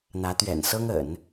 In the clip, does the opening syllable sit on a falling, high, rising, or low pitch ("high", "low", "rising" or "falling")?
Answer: rising